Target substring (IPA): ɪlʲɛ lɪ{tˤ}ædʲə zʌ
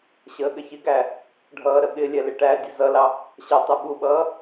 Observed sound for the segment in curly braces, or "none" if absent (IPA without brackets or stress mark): ʈ